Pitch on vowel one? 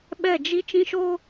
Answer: falling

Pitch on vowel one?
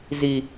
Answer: low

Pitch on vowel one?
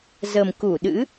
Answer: low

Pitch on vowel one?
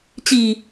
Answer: low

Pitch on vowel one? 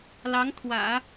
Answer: rising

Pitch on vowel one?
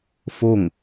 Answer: falling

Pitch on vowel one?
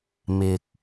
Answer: low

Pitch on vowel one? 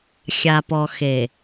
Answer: low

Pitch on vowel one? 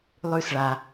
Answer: high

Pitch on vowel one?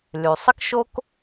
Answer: low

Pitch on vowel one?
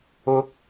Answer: rising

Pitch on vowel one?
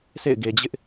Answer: falling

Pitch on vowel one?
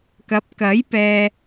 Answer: rising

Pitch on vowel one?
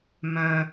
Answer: low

